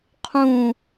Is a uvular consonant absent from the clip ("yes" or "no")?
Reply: no